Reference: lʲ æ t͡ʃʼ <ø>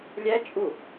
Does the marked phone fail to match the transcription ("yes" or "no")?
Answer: yes